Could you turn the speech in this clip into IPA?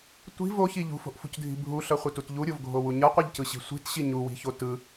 tʷ i̤ v o ç i ʎ ṳ f o̤ ʔ f ṳ c dʱ i̤ bʱ u ɬ ʌ χʷ ɯ t u t ʎ u ɾʲ o v ɡʱ o w u ɲ ʌ qʷ ɯ ʎ c ɯ ɕ i̤ sʷ i̤ t ɕ i ɲ u w i̤ ç o t ɯ

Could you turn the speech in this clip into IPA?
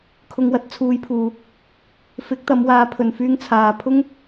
kʰ ʊ˧ ŋ w ɐ˥ t̚ t͡sʰ uː˨˧ j pʰ uː˨ | f ɪ˨˥ k̚ t̪ ɐ˨˧ m w aː˨˥ pʰ ɵ˨ n f yː˥ ŋ t͡sʰ aː˨˧ pʰ ʊ˥ ŋ

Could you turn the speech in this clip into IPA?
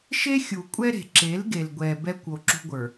ʃ e˦ xʲ u˨ kʷʼ ɛ˦ ɾ e̤˨ ǁ e˨˦ l ɡ e˨ l ɡʷ ɛ˨ b ɛ˦ kʷ o˨ ǁ ṳ˦ ɡʷ ə˞˨

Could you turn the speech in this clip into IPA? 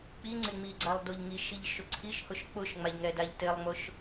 k͡p i ŋ͡ǀ ɪ ŋ͡m i ɡ͡ǀ a lˠ d o ʎ ŋ i ʃ i ʎ ʃ ʊ ǀʰ i ʃ h ʊ ʃ k͡p ʊ ʃ ŋ͡m a ʎ ŋ ɛ d a ʎ t ɪ lˠ ŋ͡m ʊ ʃ

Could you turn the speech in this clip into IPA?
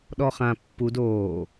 ɗ ɔ χ ã pː u d oː

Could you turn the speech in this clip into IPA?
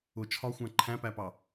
ʊ t͡ʃʰ ɒ xʷ æ̃ ǃʰ æ̃ p æ p ɑ

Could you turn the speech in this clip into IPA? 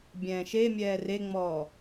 bʲ ɛ̃ː ʃ e mʲ ɛː r e ŋ͡m ɔː

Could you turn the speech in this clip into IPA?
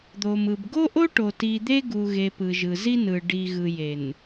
d̪ o˨ m ɯ˨ b ɡ o˦ ʔ o˦ ʈ o˨ t i˨ d̪ e˦ ɡ u˨ ɣ e˨ p ɯ˨ ʒ ɯ˨ z i˦ n ɯ˨ ɖ i˨ ɣ ɯ˨ j e˨ n

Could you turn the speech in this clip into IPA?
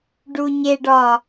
ɖ u ɲ e ɖ ɒ

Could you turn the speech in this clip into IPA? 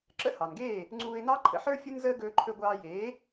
ǁ ə̰˥ h ɑ˩ n ɡ eː˥˩ | ŋ͡ǀ uː˧ ɪ̯ n ɑ˥ ǃʰ ə̰˧ ħ ə˞˥ fʲ u˥ n z əː˥ ɡ ɵː˧ ǃʰ ɵ˧ ɡʷ ɑː˧ j eː˩˥

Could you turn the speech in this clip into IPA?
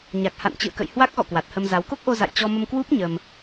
ɲ a˨˩ k̚ h a̰˧˨ n t͡ɕ ɨ̰˧˨ ə̯ k ə̰˧˨ j h w a˦˥ k̚ ɣ ɔ̰˧˨ k w a˨˩ t̚ h ə˧ m z a˨˦ w k o˦˥ k̚ ʔ o˧ z a̰˧˨ j t͡ɕ ɔ˧ m ə˧ m k w u˦˥ p̚ ɲ ə˧ m

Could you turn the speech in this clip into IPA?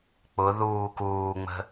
k͡p ʊ ð uː k uː ŋ͡m ə̤

